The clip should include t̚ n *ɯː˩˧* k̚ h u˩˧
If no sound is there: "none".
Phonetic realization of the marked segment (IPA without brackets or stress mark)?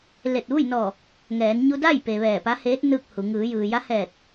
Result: ɯː˥˨